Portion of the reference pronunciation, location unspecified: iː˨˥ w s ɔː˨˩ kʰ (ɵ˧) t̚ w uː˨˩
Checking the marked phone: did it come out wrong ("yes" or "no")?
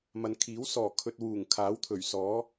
no